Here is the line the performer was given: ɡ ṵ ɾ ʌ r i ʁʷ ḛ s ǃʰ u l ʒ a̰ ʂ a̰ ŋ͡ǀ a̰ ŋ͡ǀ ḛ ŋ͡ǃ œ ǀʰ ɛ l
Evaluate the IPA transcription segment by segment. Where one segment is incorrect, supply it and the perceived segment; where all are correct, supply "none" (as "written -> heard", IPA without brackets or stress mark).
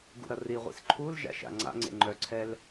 ʂ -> ʃ